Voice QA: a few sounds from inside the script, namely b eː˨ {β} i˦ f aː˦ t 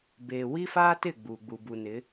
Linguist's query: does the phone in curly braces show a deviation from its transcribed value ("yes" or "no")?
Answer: yes